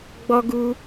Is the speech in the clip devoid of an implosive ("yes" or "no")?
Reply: yes